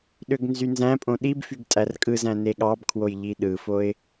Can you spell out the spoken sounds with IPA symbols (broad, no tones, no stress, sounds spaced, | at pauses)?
ɗ ø ɡ n z y n z æ̃ pʼ õ ɗ i b f y ɡ tʼ æ r kʼ ɯ z æ̃ n e ɠ ɑ b kʰ w o j ʎ i ɗ ɯ f o ɪ̯